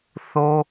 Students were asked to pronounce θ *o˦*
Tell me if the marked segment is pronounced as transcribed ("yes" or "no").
yes